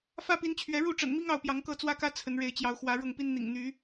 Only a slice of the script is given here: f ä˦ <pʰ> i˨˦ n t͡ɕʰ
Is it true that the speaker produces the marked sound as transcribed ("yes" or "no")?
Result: no